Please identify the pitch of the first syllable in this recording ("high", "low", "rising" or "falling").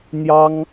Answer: high